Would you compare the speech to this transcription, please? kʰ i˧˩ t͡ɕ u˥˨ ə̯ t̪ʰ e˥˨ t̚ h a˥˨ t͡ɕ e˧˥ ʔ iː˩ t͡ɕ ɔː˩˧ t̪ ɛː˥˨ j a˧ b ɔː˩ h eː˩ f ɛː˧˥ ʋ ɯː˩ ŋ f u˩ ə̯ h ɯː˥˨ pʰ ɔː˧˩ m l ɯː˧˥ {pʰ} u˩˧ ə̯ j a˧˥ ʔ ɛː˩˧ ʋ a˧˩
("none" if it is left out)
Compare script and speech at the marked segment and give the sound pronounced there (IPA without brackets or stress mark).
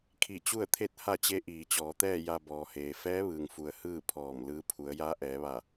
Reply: pʰ